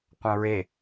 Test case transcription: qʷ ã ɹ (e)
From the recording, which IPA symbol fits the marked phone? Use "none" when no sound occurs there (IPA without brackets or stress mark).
e